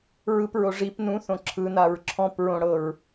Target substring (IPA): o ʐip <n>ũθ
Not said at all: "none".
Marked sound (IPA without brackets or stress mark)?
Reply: n